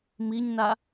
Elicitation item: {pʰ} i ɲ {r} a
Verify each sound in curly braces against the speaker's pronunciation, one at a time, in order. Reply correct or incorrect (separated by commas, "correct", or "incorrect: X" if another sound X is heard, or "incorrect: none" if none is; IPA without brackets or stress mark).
incorrect: m, incorrect: n